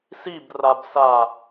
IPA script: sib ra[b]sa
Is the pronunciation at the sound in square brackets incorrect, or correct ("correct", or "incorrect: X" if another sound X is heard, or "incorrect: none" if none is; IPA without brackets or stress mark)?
correct